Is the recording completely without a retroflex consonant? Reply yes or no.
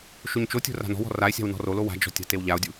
yes